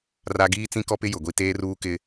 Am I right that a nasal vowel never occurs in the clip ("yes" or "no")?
no